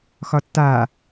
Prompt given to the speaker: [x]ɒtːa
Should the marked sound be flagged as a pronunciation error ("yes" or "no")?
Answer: no